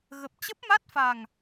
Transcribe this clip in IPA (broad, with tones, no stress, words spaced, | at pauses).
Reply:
ɣə˨˩p̚t͡ɕə˦˥p̚ma˦˥t̚fa˨˩ŋ